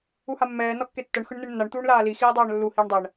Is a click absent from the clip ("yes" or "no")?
yes